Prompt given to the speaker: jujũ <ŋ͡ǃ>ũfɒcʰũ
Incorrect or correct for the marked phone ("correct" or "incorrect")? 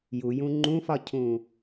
correct